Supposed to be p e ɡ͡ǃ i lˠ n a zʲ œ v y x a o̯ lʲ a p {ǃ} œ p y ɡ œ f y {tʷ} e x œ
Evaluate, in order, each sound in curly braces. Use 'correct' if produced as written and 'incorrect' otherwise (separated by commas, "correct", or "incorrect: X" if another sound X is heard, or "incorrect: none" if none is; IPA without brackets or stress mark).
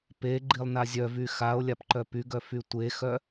correct, correct